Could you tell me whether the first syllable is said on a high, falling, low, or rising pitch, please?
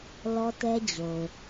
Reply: high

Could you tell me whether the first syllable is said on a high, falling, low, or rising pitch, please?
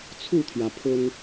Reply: falling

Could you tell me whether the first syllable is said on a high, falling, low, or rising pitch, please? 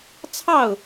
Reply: falling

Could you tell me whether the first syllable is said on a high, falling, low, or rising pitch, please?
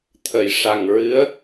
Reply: low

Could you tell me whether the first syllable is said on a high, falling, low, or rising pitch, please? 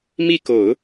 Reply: falling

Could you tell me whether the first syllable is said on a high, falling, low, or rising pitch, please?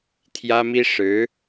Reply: high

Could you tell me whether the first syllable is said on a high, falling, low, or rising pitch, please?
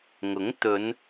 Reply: rising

